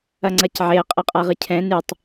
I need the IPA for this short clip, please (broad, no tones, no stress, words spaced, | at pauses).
ɐŋ͡ǀɐcʕeə̯ qʼɐqʼaʁɨcʰɛ̃ nɨtˤ